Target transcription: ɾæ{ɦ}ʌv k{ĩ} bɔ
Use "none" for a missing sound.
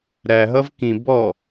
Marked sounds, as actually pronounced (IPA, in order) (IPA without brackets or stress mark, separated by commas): ɦ, ĩ